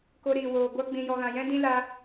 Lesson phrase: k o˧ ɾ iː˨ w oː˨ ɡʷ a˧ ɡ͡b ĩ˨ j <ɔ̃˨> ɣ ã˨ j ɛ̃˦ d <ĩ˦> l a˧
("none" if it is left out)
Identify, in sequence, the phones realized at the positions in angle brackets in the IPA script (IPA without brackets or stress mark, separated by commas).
ɔ˨, ĩ˦